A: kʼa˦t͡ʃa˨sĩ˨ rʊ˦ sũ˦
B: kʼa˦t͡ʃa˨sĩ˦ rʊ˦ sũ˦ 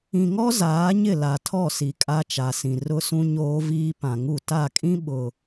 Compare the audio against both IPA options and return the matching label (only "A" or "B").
A